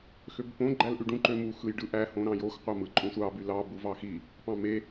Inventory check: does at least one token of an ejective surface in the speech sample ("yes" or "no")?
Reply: yes